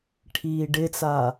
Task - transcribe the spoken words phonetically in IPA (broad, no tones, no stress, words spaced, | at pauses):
ʈʰiːɖɪt͡sa